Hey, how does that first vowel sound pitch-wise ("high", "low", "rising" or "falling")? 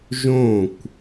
falling